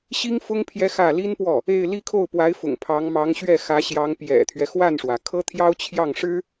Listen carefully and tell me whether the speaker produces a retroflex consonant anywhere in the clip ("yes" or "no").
yes